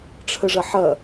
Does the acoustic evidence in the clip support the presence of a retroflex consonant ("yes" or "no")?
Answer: yes